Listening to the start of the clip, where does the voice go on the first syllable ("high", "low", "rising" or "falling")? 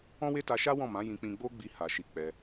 high